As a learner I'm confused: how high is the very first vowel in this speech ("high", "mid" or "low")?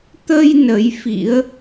mid